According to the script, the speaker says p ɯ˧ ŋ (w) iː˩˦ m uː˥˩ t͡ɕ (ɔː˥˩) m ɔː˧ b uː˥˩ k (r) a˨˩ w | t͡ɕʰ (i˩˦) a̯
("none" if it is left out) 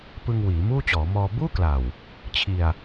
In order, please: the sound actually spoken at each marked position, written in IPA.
w, ɔː˩˦, l, i˧

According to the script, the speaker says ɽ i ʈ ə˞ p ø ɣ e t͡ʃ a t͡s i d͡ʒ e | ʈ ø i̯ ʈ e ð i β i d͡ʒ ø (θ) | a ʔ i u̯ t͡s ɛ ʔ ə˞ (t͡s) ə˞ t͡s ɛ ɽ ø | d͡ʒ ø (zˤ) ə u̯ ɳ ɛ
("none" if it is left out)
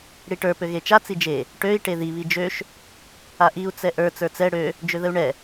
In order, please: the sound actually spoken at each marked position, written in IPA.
ʃ, t͡s, ð

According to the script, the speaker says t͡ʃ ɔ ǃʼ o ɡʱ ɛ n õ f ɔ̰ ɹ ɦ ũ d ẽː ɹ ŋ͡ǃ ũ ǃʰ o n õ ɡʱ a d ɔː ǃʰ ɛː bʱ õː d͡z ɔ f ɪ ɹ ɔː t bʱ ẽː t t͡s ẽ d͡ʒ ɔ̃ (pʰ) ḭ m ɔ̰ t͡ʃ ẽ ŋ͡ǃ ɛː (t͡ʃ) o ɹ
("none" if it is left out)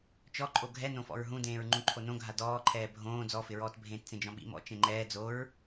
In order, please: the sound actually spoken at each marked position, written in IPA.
ɓ, d͡z

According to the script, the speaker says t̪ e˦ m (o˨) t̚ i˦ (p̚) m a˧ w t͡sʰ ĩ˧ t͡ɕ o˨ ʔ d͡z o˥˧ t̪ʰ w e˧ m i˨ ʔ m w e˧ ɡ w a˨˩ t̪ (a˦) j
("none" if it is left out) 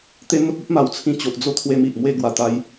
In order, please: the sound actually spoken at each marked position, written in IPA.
o˦, p̚, a˧

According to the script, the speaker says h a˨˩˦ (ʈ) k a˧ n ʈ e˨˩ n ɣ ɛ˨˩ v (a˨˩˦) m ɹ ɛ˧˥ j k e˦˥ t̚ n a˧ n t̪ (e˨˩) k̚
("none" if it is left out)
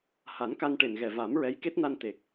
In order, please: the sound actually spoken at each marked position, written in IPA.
n, a˨˩˦, e˨˩

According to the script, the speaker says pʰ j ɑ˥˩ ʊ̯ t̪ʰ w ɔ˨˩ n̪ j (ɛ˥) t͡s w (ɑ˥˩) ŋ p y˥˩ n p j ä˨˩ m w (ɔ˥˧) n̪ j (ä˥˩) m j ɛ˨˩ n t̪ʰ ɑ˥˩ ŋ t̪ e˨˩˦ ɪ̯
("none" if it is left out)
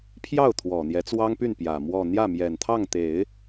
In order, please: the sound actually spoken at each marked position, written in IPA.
ɛ˧˥, ɑ˥, ɔ˥˧, ä˥˩

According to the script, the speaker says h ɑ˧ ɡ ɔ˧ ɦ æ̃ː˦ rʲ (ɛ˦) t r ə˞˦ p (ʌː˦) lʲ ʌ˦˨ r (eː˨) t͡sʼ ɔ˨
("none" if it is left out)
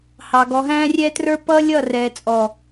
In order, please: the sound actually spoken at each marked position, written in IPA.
ɛ˦, ʌː˦, ɛː˨

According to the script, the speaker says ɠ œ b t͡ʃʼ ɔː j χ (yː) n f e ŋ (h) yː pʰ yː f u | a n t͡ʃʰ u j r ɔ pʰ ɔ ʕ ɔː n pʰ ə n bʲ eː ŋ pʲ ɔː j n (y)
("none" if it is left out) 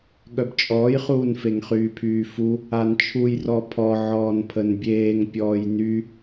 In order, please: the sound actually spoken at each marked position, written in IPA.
uː, χ, y

